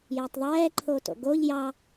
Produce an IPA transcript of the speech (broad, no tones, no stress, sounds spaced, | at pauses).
j ɐ tˤ ðˤ ɛː ǃʰ o t o̰ ɡ o ʎ j ɑ